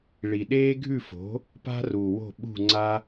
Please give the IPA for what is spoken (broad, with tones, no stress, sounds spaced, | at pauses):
ɭ i˨˩ ɗ eː˥ ɡʱ ʉ˥˨ f o̤˩˥ | p a̤˥ r u˨˩ w o̤˥˨ ɓ ṳ˥˨ ŋ͡ǀ a˥